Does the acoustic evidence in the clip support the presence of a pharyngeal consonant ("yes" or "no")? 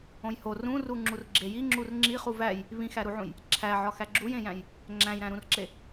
yes